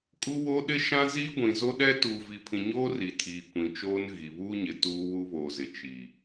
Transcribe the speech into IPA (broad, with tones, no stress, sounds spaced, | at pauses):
kʼ u˦ w o˦ ɗ ɪ˦ ʃ ã˦ z iː˦ ɡʷ ĩ˨ z o˦ ɗ ɛ˦ t uː˨ v i˨ pʰ ĩ˨ ɲ oː˦ r i˨ tʰ iː˨ kʷ ĩ˨ t͡ʃ oː˦ n ɣ i˨ β uː˦ ɲ ɪ˨ t uː˦ w u˦ β oː˨ z ɪ˨ t͡ʃ i˨